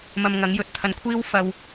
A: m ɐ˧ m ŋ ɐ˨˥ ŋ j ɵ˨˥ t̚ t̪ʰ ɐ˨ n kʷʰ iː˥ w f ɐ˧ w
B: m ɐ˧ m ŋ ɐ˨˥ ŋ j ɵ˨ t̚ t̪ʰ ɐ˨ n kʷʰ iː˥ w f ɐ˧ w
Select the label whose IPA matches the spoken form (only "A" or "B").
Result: B